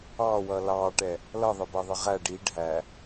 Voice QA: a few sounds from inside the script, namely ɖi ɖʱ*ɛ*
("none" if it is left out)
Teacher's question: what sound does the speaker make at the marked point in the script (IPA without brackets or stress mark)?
æ